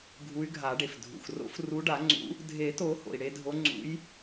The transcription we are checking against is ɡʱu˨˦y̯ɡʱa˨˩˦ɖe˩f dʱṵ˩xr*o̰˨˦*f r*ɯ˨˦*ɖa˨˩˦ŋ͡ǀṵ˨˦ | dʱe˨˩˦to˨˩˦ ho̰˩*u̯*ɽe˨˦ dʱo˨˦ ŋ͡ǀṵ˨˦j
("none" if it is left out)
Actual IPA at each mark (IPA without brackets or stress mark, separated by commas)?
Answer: o̰˨˦, u˨˦, i̯